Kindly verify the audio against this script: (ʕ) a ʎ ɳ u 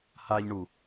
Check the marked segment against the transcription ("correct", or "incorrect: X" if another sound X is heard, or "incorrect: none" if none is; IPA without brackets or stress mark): incorrect: h